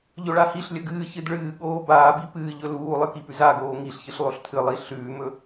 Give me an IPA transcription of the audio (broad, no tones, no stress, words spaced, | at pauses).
ʎɵɭahiɬlʲɐ ɡɨːçɨd ɭɨːɠoː baːbi pɨːʎɵ luːlˠɨ kipʉzaɡoː ŋiɬçɨɬ lˠoɬtʰɨlˠi ɬʉːmɵ